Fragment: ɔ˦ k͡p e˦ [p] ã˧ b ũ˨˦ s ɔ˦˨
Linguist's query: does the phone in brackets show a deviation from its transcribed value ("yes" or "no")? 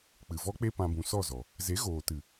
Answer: no